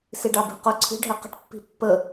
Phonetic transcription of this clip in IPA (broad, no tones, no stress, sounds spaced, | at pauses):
s i ɖ ɑ b i̤ q ʊ ǀʰ i̤ ɖʱ ɛ q ə̤ ʈ pː i̤ pː ə